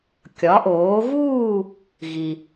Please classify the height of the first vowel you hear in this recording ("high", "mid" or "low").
low